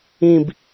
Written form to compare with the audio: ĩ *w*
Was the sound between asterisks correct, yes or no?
no